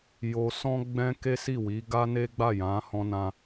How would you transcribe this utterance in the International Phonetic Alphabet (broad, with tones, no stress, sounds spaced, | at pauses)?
j o˧ s ɔ̃˦ ɡ͡b ɛ̃˦ k e˦ s i˦˨ w i˨˦ ɡ a˦ n e˦ ɡ͡b a˦˨ j ã˨˦ h ɔ̃˧ n ã˧